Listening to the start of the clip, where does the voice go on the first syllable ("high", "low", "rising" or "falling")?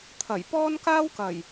low